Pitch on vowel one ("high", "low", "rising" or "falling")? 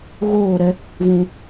falling